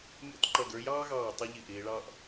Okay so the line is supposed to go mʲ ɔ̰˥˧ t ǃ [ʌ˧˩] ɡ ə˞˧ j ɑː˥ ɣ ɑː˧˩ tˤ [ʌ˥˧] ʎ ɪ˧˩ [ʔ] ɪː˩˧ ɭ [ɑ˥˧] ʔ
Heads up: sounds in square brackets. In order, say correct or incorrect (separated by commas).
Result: correct, incorrect, correct, correct